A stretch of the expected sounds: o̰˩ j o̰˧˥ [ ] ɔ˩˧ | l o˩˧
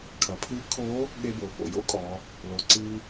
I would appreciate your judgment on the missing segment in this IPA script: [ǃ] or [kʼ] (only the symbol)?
kʼ